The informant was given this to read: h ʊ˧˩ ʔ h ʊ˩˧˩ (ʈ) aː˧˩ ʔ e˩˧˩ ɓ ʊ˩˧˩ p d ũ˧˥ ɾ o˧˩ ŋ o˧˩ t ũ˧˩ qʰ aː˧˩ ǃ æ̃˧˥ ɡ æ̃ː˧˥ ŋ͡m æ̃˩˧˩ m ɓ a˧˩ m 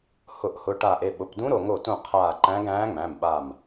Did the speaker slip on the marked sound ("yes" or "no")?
no